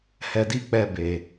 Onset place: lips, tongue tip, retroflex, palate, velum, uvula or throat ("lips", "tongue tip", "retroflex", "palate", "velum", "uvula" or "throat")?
throat